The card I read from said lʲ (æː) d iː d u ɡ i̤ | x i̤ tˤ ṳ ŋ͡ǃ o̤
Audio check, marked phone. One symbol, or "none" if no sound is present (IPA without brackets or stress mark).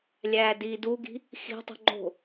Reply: æː